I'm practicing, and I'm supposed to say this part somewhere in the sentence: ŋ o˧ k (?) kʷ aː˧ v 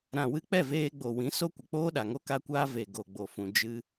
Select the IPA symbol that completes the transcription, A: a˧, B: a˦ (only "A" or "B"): A